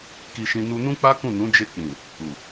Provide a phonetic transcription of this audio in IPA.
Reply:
k i˧ ʃ ĩ˧ n u˧ n ũ˦ k͡p a˦ k ũ˦˨ n ũ˨˦ d͡ʒ e˧ k͡p ĩ˨ | u˨

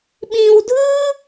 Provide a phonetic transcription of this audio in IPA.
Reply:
ɓ ĩ˧ w dʱ ɯ˦

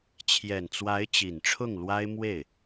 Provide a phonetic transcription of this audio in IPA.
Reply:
t͡ɕʰ j ɛ˨˩ n t͡s w a˧˥ ɪ̯ t͡ɕ i˨˩ n ʈ͡ʂʰ ʊ˥˩ ŋ l w a˥ ɪ̯ m w e˥˩ ɪ̯

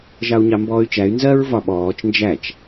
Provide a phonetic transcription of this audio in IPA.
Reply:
ʒ ɑ u̯ ɲ ɑ m b ɔː y̯ t͡ʃ æ y̯ n z ɜ ɹ v ɒ ɓ ɔː t͡ʃ n d͡ʒ æ t͡ʃ

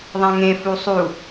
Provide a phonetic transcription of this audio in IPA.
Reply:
ðˤ ã ŋ ẽ f u sˤ u

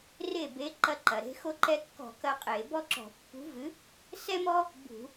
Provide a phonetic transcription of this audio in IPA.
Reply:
r e˥˩ b e˨˥ ǃ ɐ˥˩ ǃ ɐ˩ ɾ e̤˨˥ x o˦ ǃ ɛ˦ kː ɔ̤˧˩˧ k ɐ˦ qʼ e˧˩˧ b ɔ˦ ǁ ɔ̤˧˩˧ pː ṳ˨˥ v ɨ˨˥ | s ɛ˦ m ɔ˦ | b ṳ˧˩˧

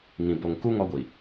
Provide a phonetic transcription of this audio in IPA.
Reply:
ŋ ĩ˨ b o˨ ŋ k u˦ ŋ ɔ˦ ɡʷ i˨

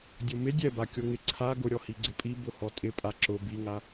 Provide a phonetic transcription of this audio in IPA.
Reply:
dʲ o m ɪ dʲ ɛ b a kʲ o ŋ ɪ ǀʰ a ɡ ʊ ɾʲ ɔ h i ɡ͡ǀ ɪ pʼ i b ʊ h ɔ tʼ ɪ pʼ a ǁ ʊ b i ŋ a

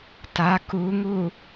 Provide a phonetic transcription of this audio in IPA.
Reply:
t a k u ŋ u

